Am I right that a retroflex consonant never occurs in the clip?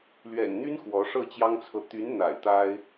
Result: no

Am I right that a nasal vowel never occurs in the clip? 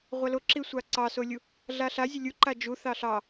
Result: yes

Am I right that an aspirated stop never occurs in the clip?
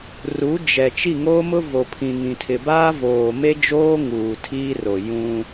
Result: no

